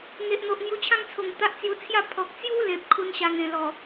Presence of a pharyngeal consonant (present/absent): absent